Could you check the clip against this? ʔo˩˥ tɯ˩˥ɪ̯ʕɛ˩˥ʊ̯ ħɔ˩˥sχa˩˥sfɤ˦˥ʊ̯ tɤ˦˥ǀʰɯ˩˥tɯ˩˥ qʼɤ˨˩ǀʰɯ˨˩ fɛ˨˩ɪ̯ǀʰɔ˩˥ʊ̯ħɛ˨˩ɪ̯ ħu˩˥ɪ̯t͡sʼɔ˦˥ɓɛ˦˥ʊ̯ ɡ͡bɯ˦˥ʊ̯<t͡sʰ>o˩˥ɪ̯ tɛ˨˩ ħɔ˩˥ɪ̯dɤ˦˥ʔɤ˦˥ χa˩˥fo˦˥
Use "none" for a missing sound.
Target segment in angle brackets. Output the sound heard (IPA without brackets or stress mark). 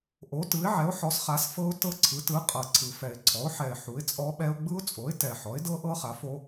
t͡sʼ